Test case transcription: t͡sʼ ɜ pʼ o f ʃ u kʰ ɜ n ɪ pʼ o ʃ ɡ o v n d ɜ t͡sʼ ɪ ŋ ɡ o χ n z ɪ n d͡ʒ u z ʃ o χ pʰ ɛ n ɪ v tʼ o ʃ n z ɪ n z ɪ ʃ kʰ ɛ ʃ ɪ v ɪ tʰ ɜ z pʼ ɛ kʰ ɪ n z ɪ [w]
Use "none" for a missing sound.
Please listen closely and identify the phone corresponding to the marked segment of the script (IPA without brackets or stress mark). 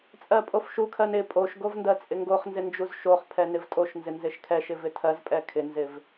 v